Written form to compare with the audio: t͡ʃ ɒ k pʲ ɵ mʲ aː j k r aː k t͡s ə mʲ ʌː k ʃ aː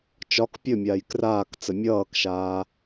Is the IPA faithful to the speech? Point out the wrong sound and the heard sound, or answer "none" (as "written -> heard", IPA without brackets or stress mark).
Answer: none